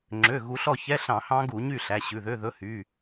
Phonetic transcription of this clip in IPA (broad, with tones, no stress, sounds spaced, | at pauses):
ŋ͡ǁ ø˩˧˩ ɣ u˨˦ ɬ ɔ˥˨ ç ɛ˧˥˧ ɬ ɑ̃˧˩˧ h ɑ̃˦˥ ɡ u˧˩˧ ɲ y˥˨ ɬ æ˩˧˩ ɕ ʉ˩˧˩ ð ø˧˥˧ ð ɵ˧˥˧ h y˩˧˩